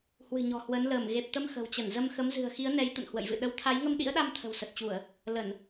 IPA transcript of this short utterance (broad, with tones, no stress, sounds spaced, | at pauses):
h w ɨ̤˨˩ ɲ ɔ̤˨˩ h w ə˨˦ n l əː˧˩ m ɣ e˨˩ p̚ t̪ ə˧ m x ə̤˨˩ w t͡ɕ ə˧˩ n z ə˧ m x ə˨˦ m z ɨ̤˨˩ ə̯ x i˨˦ ə̯ n ɛ˨˦ j t̪ ə̰˧˨ n h w ə̰˧˨ j v ɨ̰˧˨ ɗ ə˨˦ w t̪ʰ a˨˦ j ŋ ə˧ m ɗ ḭ˧˥ ə̯ ɗ a˧ m t̪ʰ ə̤˨˩ w s ə˨˩ t̚ t͡ɕ u˧˩˨ ə̯ | l ə˧˩˨ n